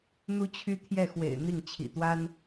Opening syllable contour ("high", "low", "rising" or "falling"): high